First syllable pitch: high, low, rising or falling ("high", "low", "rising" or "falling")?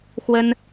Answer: high